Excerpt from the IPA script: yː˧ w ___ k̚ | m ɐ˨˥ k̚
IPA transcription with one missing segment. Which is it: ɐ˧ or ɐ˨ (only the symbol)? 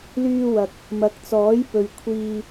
ɐ˨